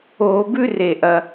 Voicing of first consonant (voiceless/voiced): voiced